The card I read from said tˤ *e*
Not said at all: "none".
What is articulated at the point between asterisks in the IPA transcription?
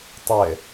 e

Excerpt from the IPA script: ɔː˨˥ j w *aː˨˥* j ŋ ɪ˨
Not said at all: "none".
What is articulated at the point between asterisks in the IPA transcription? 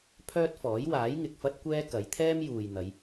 aː˨˥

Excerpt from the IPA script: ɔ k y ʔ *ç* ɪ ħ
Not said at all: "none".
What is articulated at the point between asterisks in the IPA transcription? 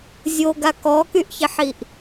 ç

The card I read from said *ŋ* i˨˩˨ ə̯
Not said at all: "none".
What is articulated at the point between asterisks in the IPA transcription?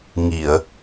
ŋ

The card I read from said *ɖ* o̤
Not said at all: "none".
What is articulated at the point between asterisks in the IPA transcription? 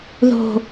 ð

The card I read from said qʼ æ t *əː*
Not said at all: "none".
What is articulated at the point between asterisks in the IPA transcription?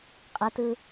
ɯː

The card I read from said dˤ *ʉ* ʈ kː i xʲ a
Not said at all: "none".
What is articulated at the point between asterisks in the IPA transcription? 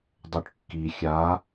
ʉ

